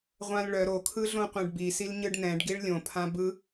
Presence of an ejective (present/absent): absent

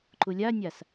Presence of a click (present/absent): present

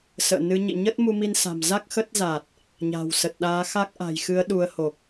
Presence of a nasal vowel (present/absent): absent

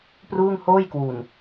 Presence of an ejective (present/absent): absent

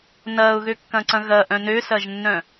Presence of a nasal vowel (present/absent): present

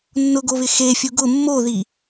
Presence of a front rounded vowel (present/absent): absent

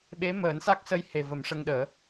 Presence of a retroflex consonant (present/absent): present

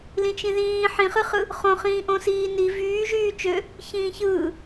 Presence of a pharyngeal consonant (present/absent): present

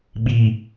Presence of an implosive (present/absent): present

